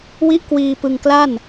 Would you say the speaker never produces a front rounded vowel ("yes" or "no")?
yes